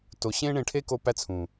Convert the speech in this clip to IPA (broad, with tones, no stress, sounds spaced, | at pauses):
t o˨ ɕ ẽ˦ ɳ ẽ˧ ʈʰ e˦ k o˧ p æ˦ t͡sʰ ũ˨